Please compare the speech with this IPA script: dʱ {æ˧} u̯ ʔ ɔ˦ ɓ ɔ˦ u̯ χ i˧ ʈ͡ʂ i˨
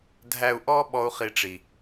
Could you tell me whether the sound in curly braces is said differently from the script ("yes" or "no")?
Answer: no